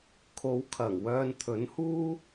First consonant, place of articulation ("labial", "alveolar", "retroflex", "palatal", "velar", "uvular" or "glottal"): velar